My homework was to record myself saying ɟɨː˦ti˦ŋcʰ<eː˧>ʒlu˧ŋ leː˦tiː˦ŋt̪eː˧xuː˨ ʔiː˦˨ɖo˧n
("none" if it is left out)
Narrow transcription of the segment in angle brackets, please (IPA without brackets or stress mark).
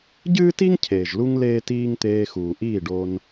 eː˨